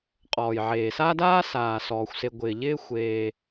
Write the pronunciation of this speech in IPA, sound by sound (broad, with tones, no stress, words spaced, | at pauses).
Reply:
qʼɔː˩jʕeː˩saː˦daː˦ saː˩sɔː˩xʷse˨ ɡʷɪː˩ʎɪː˦ xʷeː˨